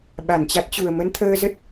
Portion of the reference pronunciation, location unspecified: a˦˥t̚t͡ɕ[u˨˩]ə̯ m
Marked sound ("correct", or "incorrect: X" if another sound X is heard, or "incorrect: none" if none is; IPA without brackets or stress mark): correct